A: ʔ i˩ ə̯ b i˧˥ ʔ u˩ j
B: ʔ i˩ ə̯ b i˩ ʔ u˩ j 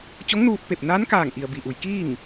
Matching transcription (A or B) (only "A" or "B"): B